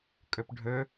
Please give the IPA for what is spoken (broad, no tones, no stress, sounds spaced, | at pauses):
kʼ ɵ p ɖʱ ɵ